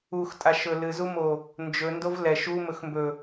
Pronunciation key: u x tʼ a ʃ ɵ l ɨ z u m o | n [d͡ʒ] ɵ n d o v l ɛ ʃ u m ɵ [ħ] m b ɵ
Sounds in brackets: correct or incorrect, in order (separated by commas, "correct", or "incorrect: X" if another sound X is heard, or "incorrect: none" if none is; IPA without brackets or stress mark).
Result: correct, incorrect: x